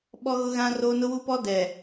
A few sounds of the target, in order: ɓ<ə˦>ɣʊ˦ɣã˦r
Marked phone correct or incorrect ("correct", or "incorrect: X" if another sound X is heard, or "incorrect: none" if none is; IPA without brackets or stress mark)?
incorrect: ɔ˦